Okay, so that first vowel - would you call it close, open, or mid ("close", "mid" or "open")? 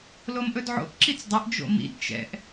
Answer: mid